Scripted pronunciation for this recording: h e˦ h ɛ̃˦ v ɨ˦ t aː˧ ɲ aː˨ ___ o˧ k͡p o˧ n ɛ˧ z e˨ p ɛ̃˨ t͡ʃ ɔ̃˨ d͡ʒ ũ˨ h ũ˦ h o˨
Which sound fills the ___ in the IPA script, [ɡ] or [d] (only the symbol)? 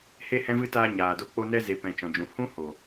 d